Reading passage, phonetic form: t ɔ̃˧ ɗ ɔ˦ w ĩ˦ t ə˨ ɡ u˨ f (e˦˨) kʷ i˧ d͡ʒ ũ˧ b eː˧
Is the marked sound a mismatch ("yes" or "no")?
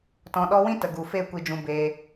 no